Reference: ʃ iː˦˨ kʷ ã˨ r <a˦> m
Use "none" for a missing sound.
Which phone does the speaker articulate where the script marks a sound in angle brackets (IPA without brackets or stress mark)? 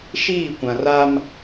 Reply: a˦